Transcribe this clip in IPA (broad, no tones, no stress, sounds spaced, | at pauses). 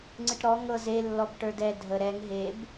ŋ͡ǀ ɨ ʈ ɾ ɔ ŋ ɤ z e lː ɔ b ʈ ə˞ d ɛ dʱ ə ɾ ɛ ŋ ɦ e b